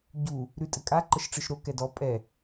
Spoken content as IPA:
ɟu | ɾʉ tʼɘkʼa ǃəʃʈ͡ʂɯʃɾo kɛdɔ pʼɛ

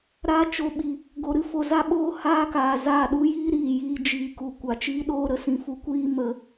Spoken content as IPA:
ɾa˧ t͡ʃo˨ɓi˨ | ɡo˧ɾɨ˨ fo˨za˧ɓoː˧ haː˦kaː˨ za˦˨ɗu˦jiː˦ ɾiː˨jiː˧ d͡ʒiː˨ku˨ kʷa˨t͡ʃiː˦ɗoː˦ ɾə˦sĩ˨fu˦kʷiː˦ mə˧

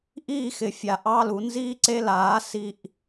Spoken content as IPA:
ʔiː˥˨xɪ˩˧fʲa˩˧ ʔɑ˧˥˧lu˨˥ nziː˥ǀe˧˥˧ laː˨˥ si˥˨ʔ

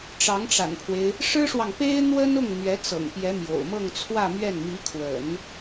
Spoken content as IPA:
ʈ͡ʂɑ˧˥ŋʈ͡ʂa̰˨˩npʰwe˦ɪ̯ | ʂɻ̩˥ʂwɑ˨ŋpe˥ɪ̯ n̪wə˥nʊ˥˩ŋ n̪ɥɛ˧˥t͡sɤ̰˨˩ŋpjɛ˧˥ mjo̰˨˩ʊ̯ mɤ˥˧ŋt͡sʰwä˥˧mɥɛ˥˩n mi˧˥kʰwə̰˨˩˦n

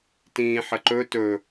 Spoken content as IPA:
tĩːħəǃɵ tɵ

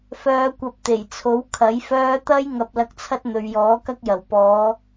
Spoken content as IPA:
fœː˧kʷɐ˧p̚t̪e˨˩jt͡sʰo˨˥w kʰɐ˨˥jfœː˥ t̪ɐ˥j ŋɐ˧p̚lɐ˧k̚t͡sʰɐ˥t̚ n̪ɵ˨ɥjɔː˨˥kɐ˥k̚jɐ˨˩w pɔː˨˧

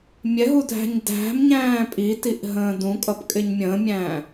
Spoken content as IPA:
mʲɛɦu dʱæ̤ɲdæ̤mɲæ̃ː pʼitiʔ ɦə̃ːdũkʼʌp kʼɪɲmʲə̃ːmʲæ̃ː

